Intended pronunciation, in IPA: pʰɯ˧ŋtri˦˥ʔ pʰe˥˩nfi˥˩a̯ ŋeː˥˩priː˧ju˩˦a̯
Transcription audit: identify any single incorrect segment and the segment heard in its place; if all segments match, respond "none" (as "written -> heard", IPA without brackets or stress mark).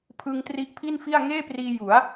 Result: e˥˩ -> i˥˩